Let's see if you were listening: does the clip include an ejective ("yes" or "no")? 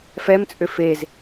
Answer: yes